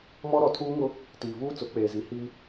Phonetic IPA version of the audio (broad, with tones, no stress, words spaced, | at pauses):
mɔ˦ɾɔ˨tʰuː˦ŋʊ˦ | tiː˨vuː˦ t͡sʊ˨˦k͡peː˨zi˨˦ hiː˦